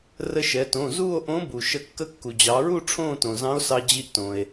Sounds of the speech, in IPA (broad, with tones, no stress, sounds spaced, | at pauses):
r ə˧ ʃ ɛ˩˧ t õ˩˧˩ z uː˥˧ o̯ ʔ õ˧˥ b u˩ ʃ ə˧ kː ə˧˥ kː u˩ d͡ʑ ɑ˩˧ ɹ u˥˧ ʈ͡ʂʰ õː˥˧ t õ˩ z ɑ̃˧˥ o̯ s ɑ˧ d͡ʑ i˧ ʔ t õ˩ e̯